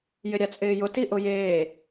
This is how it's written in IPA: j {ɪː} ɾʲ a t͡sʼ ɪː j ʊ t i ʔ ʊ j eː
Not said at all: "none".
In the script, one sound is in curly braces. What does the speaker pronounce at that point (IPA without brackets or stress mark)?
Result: ɪ